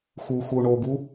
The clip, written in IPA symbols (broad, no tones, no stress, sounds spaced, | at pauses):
x uː x uː ɳ o ɡ u